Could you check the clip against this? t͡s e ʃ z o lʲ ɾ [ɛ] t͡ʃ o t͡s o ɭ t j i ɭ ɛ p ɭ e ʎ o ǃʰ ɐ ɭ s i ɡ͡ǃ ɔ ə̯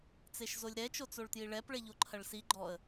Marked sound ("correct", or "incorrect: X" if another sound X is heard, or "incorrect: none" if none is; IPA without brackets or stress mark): correct